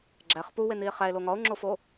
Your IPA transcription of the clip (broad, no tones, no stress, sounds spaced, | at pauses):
ɡ͡ǁ æ χ p u w e n i e̯ χ æ e̯ l o ŋ ɒ o̯ ŋ͡ǁ o f o